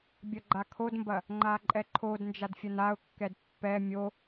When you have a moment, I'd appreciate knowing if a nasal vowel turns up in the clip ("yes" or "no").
no